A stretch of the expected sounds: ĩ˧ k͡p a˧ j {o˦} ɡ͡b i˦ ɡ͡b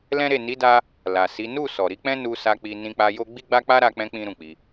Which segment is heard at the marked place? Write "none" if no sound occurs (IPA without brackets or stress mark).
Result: o˦